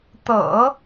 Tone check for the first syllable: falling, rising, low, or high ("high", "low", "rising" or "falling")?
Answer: low